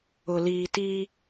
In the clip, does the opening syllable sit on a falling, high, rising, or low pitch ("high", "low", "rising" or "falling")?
low